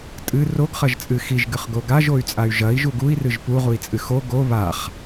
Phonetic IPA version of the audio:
tʼɨ roɡχɐʒ t͡sʼɨxiʒɡɨχ ɡoɡaʒoy̯t͡sʼay̯ ʒɐi̯ ʒuɡui̯rɨʒ puʁui̯t͡sʼɨ xo ɡo βaχ

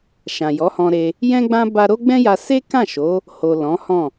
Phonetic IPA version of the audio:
ʃã˨jɔ˨˦hɔ̃˧ɾe˧ | jɛ̃˦ɡ͡bã˦ ba˦ ɾo˦ɡ͡bɛ̃˦ja˧ se˦kã˦˨ʃo˨˦ | ho˨ lɔ̃˨˦hɔ̃˦˨

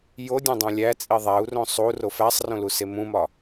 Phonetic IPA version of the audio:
jodʲẽdˤõ lʲæt͡sʼi ðˤæu̯rõ sˤuro fæsˤrõluse mũmɒ

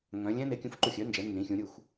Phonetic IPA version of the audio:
ŋœ̃˩˧ lʲɛ̃˦˥ ne˩˥kʲũ˩˥fǃu˧˩xʲœ˩˥ nd͡ʒɛ˩˥ nːĩ˩˥xʲũ˩˥ ɾʲu˧˩x

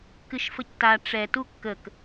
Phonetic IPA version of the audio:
kɨʃfəcta ʈ͡ʂɛ tukːək

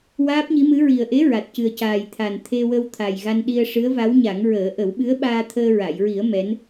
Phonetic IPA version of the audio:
waː˦˥p̚ɲi˧˥mɨ˧˥ ɹi˨˩ə̯ʔe˧˥ ɹa˨˩t̚cɨ˨˩ə̯caː˨˩j t̪ʰa˨˩n t̪ʰe˧wə˧w t̪ʰa˨˩jɣa˧nɗi˧ə̯ ʂɨ˧˥ə̯va˧˥wɲa˨˩˦ŋɹəː˨˩˦ ʔə˨˩˦wɓɨ˧˥ə̯ ɓaː˧t̪ʰəː˧ɹa˨˩˨jɹi˨˩˦ə̯ mɛ˧˥n

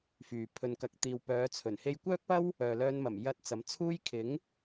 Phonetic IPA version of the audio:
fyː˨pʰɵ˧nkɐ˧k̚ t̪iː˨w pœː˨˧t͡sʰɵ˨˩n he˧jkʷœː˥k̚pɐ˥w | œː˨lœː˧nmɐ˨˩m jɐ˧t̚ t͡sɐ˨˧mt͡sʰuː˥j kʰɪ˨˥ŋ

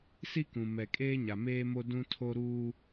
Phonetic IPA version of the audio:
si˦kũ˨ mɛ˨kʼeː˦ɲa˨meː˦ mo˦ dũ˦tʰo˦ ɾuː˦

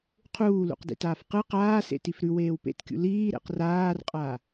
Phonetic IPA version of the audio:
qʰuːlṵqdḭtaːf qɨ qaːsḛ tifɾʉ weːwpḛtkʲṵ liː ɾḛqraːrqʼa

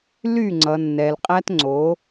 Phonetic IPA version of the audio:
ly˦˨ŋ͡ǀʌ˨nːɛ˨lqʼæ˦t ŋ͡ǀo˨˦

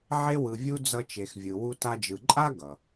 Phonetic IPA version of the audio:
ʕe˦wɯ˨vʲu˦ d͡zʌ˦t͡ʃe˨xvʲɯ˨ wu˦ta˦d͡ʒɯ˨ ǃʼa˥ ɡʌ˩

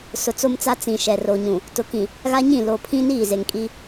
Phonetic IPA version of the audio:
sʊ˨t͡so˦mt͡sa˦ t͡sĩ˨ʃɛ˨ro˨ɲũ˨ | tʊ˨kĩ˨ | ɣa˦ɲĩ˦˨ lo˨pʰĩ˦niː˦˨ ze˨ŋkʼi˦

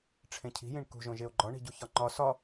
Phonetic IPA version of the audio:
ʈ͡ʂʰẽcʰi̤jĩɳ kṳʒõ ʒeo̯ɡ͡ǃɒɳi̤ɟu çɒŋ͡ǃɒ sɒ

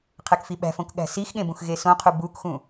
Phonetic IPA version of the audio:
qʰekfiɓæ̤fõk ɠæ̤sixɠẽ bũxɣesõqʰu bukxũ

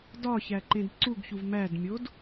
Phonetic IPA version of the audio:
dɒçæǃẽd ǀuɡçuv mædmʲod

